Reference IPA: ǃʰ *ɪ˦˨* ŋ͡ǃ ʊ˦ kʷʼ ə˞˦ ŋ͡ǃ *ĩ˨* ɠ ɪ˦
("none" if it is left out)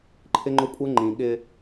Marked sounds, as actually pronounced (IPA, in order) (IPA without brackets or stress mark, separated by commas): ɪ˦, ĩ˨